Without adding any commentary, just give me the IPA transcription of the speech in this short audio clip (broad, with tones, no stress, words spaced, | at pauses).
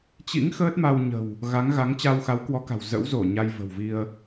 t͡ɕḭ˧˥ŋ xəː˦˥t̚ma˧wɲə̤˨˩w | ɣa˨˦ŋɣa˨˦ŋt͡ɕa˧w xa˨˦wkwɔ˨˦ka̤˨˩w zə̰˧˥wzo˧˩ ɲa˧jvə̤˨˩wvi˧ə̯